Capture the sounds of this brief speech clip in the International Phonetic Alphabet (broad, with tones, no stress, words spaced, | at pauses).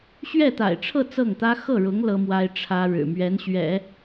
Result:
ɕɥɛ˥˩t̪a̰˨˩ɪ̯ʈ͡ʂʰɤ˥˧ t͡sɤ˥˩ŋt̪ä˥ xɤ˥˩ɻʊ˧˥ŋ lɤ˥mwa˥ɪ̯ ʈ͡ʂʰä˥ɻɻ̩˨˩ mɥɛ˧˥nɕɥɛ̰˨˩˦